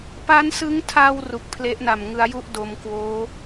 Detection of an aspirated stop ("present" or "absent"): present